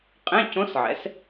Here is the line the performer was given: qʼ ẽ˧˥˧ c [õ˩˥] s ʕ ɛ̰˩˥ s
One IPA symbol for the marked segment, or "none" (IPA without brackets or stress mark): õ˧˥